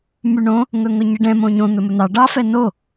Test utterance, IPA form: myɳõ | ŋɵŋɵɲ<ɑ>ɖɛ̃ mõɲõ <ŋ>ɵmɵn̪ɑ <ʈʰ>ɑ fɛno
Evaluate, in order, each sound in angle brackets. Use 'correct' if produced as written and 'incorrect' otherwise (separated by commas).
incorrect, incorrect, incorrect